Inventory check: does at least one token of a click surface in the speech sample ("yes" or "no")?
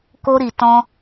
no